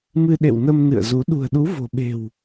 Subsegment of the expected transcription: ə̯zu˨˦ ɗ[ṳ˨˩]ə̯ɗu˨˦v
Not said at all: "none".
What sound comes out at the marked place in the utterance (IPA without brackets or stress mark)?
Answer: ṳ˨˩